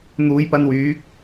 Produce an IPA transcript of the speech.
n̪ uː˨˧ j p ɐ˧ n w yː˨˥ k̚

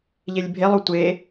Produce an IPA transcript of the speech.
ʎ e lʲ bʱ e lˠ o tʷ e

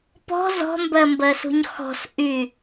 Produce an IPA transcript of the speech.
p ɔ̤ z ɔ̤ m b ɜ m b ɜ s ṳ ɲ x ɔ̤ s ʔ y

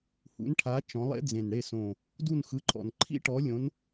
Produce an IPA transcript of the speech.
h ṵ˨˦ n ʈʰ a˨˦ t͡ʃ ɔ̃˨˦ lˠ ḛ˦˥ d͡z ẽ˨˩ n ɽ e˦˨ s õ˨˩ | d u˦˨ n x ɯ˨˦ ǃʰ ɔ̰˨˩ n ǃʰ ḭ˦˥ ʈ ɔ˨˦ lʲ õ˨˦ n

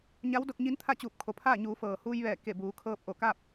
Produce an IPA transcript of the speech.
ɲ a˧˥ w d o˧ k̚ ɲ i˧˥ n t̪ʰ a˥˨ t͡ɕ uː˧˩ p̚ kʰ o˩ pʰ aː˥˨ ɲ uː˩˧ f ɤː˩ h uː˧ j ʋ ɛː˧˩ k e˧˩ b uː˩˧ kʰ ɤː˧ p̚ ʔ o˧˩ k a˥˨ p̚

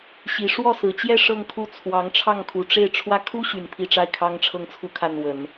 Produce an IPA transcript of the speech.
ɕ i˧˥ ʂ w ɔ˥˩ s ɹ̩˨˩ t͡ɕ j ɛ˥˧ ʂ ɤ˥˧ ŋ kʰ u˥˩ t͡sʰ w ɑ˧˥ ŋ ʈ͡ʂʰ ɑ˥˩ ŋ kʰ u˨˩ ʈ͡ʂ e˥˩ ɪ̯ ʈ͡ʂʰ w ä˥ kʰ u˥ ɕ y˨˩ n pʰ i˥˧ ʈ͡ʂ a˥˩ ɪ̯ kʰ ɑ˥ ŋ ʈ͡ʂʰ ɤ˥˧ ŋ t͡sʰ u˥˧ kʰ a˥˩ n w ə˨˩˦ n

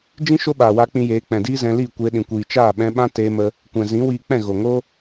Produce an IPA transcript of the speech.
d͡ʒ ĩ˦ ʃ o˦ ɓ aː˨ w aː˧ k͡p ĩ˧ j eː˨˦ k͡p ɛ̃˨ d iː˦ z ɛ̃˧ l iː˦˨ kʷ eː˧ ɗ ĩ˨ kʷ iː˨ t͡ʃ aː˦˨ ɓ ɛ̃˧ ɓ ã˦ t eː˧ m ə˧ | kʷ ɛ̃˨ z ĩ˨˦ w iː˧ k͡p ɛ̃˦˨ ɣ o˨ ŋ o˦

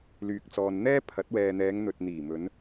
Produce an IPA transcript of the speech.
l yː˨ k̚ t͡s ɔː˨ n n̪ ɛː˥ pʰ ɐ˨˥ t̚ w ɛː˨ n̪ ɛː˨˧ ŋ n̪ ɵ˨ t̚ n̪ iː˨˩ m ɵ˨˧ n

